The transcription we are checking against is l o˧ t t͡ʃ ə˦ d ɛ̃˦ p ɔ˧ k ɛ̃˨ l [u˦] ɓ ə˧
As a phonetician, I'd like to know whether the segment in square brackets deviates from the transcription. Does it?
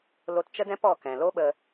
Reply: yes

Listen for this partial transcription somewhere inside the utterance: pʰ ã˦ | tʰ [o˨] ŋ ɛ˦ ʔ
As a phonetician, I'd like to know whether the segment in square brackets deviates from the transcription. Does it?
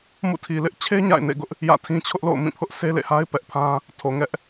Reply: no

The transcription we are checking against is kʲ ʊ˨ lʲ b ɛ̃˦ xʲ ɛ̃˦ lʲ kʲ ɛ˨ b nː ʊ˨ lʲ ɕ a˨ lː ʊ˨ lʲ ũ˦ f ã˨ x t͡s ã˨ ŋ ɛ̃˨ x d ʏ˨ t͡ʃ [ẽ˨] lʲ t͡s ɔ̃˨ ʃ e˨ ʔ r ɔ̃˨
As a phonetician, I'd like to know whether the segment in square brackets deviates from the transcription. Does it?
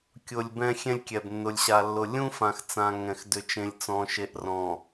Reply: no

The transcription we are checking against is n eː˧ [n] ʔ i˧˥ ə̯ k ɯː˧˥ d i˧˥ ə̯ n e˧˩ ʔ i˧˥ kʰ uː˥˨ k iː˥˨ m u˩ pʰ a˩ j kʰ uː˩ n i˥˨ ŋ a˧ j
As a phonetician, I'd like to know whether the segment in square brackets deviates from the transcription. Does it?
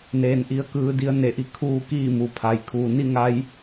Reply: no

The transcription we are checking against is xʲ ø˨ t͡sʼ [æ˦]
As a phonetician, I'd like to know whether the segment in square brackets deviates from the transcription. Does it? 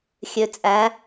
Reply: yes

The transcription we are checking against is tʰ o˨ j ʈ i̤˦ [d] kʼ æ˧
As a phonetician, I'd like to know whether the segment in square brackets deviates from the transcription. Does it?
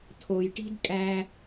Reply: no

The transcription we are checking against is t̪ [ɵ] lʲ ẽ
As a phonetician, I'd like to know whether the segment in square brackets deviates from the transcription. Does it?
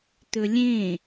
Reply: no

